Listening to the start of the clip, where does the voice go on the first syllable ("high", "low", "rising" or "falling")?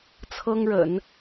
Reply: high